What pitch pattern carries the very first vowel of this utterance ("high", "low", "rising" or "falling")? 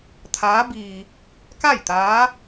rising